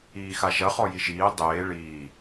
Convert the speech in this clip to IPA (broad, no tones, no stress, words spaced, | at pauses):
iːxaʃɐ χɔjiʃiː dˤeː ɭiː